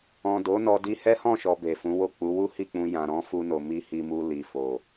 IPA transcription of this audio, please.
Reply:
ɔ̃˨ d o˨˦ n ɔ˧ d i˧ h ɛ˦ h ɔ̃˦˨ ʃ ɔ˨ b e˨ f ũ˨˦ w o˦˨ k͡p u˨˦ w u˦ h i˦˨ k͡p ũ˧ j ã˨ ɾ ɔ̃˨˦ f u˧ n o˨ m i˧ h i˧ m u˧ l i˨ f o˨

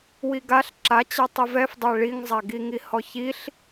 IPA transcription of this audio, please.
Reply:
w i ɡ a ɬ ǁ a t͡ɕ a tˤ i v ɛ f dˤ ɛ ɭ i ŋ zˤ a ɡ i ŋ i h ɔ ç i ɬ

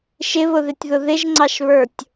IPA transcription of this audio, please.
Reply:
ʃ ɪ β ʊ ð ɪ tʲ ð ʊ ð ɪ ʒ ŋ͡ǀ ɑ ʃ β ə˞ tʲ

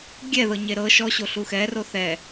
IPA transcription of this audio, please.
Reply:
ɡʲ ɛ ð ɤ ɲ e ɾ ɤ ʃ ɔ ɕ o ɬ u x ɛ r o θ ɛ

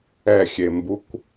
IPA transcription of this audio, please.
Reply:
ɛ xʲ e m b u kʷ

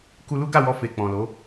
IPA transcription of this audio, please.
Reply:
k u˧ l u˦ ɡ a˦˨ w ɔ˧ f e˨ k͡p ɔ̃˨ l o˨˦

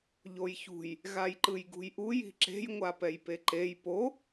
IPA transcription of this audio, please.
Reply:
ʎ o j ç ṳ j | ɣ a j ǃ ɯ j ɡ ṳ j ʔ u j i̤ ǁ e̤ j ŋʷ a p ɛ j p e ǃ e j p o

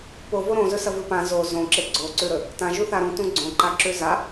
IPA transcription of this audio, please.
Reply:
p o v o ɾ õ z ɵ s ɐ v ɨ p ã z o z õ ǁ e ɡ͡ǀ o ǀ ʉ ɾ ɵ | t ã ʒ u θ a ɾ ũ t ũ ɡ͡ǀ õ ǃ a ǁ ʉ z a

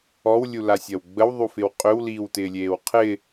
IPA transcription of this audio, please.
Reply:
ɔ w lʲ u l a sʲ ɐ w ɡ͡b ə w ðˤ u f ɪ w qʼ ʏ w l iː w t ɪː lʲ eː w qʰ ɪ

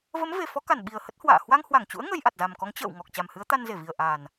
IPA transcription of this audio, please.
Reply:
v ə˨˦ m v e˨˩ f ɔ˨˦ k a˧˩ n ɓ i˨˩ ə̯ h ə˦˥ t̚ h w a̰ː˧˨ h w a˧ ŋ h w a˧˩ ŋ t͡ɕ ṵ˧˥ ə̯ ŋ ə˧ j ʔ a˨˩ t̚ z a˨˩ m k ɔ˨˦ ŋ t͡ɕ ə̰ː˧˨ w ŋ ɔ˨˩ k̚ t͡ɕ a˨˩ m h ɨ˨˦ ə̯ t̪ a˧ n z e˧˩ v i˨˩ ə̯ ʔ aː˨˩ n

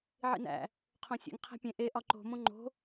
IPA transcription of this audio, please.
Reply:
ʕ ḭ n æ̰ | qʰ õ sʲ ḛ ŋ qʰ æ̤ pʲ ẽ ʔ e ʔ ɒ ǃ o̤ m õ ŋ͡ǃ o̤

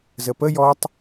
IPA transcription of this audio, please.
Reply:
z ə p ə j ɔ tˤ

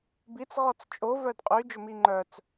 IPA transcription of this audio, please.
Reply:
b i t͡s ʁ ɔ t͡s t͡ʃʼ o v œ d qʼ y d͡ʒ ɵ m i ŋ͡ǃ œ t͡s

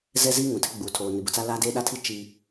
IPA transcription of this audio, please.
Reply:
z ɛ˦ z iː˦ ŋ ũ˨ tʰ ɪ˦ ɡ͡b uː˨ tʰ oː˨ n ɪ˨ b ʊ˨ t͡s a˦ l aː˦ d eː˦ ɗ a˦ tʰ i˦ t͡ʃ iː˦

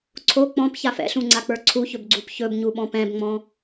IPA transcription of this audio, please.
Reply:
ǀʰ o k͡p ɔ̃ p ç a f ɛ̰ ɬ ũ ŋ͡ǀ a k͡p ə˞ ǀʰ u ç ɵ b ɡ͡ǀ u p ç ɵ b ɲ u ɓ ɔ̃ p ɛ̃ b ŋ͡m ɔ̃

